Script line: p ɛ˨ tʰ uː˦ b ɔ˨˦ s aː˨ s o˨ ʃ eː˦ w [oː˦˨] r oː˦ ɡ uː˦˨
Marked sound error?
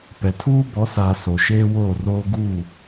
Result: no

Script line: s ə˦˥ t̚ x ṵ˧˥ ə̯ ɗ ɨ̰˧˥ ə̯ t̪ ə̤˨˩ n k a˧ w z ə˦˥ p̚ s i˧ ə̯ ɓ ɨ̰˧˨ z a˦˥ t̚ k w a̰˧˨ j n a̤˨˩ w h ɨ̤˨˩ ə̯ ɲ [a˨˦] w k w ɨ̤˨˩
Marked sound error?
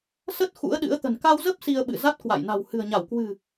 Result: yes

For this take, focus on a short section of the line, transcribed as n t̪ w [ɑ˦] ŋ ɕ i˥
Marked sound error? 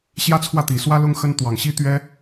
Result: yes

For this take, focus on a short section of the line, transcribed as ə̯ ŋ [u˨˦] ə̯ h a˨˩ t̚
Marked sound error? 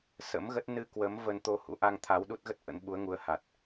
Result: no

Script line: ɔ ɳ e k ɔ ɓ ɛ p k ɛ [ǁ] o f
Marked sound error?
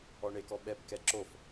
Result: no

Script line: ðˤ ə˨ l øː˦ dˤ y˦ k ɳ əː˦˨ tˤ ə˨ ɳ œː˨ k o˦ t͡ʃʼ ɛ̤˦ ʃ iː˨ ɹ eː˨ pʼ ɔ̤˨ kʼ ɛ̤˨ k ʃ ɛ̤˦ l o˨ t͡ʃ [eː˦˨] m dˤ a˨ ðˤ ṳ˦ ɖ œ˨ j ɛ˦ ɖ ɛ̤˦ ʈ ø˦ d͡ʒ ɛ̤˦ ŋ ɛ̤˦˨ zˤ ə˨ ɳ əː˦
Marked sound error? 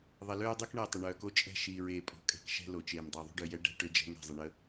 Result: yes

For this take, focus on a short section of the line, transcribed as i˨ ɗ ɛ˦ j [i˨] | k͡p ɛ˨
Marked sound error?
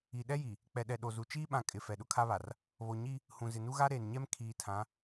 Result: no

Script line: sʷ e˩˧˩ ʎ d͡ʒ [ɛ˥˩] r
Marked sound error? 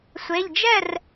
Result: no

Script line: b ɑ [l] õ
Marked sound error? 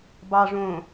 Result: yes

